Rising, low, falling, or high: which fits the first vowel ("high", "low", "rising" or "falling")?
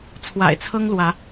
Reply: low